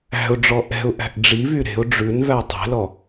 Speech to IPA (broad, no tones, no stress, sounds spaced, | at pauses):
æ̤ ʊ̯ ɖ͡ʐ ɔ ʔ ɛ̤ ʊ̯ ʔ æ̤ ʔ ɖ͡ʐ i v y ɾ e̤ ʊ̯ ɖ͡ʐ ʉ n v æ tˤ ɛ̤ l ɔ